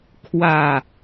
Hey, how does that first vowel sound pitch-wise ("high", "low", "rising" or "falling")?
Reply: falling